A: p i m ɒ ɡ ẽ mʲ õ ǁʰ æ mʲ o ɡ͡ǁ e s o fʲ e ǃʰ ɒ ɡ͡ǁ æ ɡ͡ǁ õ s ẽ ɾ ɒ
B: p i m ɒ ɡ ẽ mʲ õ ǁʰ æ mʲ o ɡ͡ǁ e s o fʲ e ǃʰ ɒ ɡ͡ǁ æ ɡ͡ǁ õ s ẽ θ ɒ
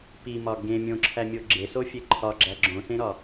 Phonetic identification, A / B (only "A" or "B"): A